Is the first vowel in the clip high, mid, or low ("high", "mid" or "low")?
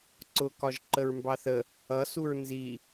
high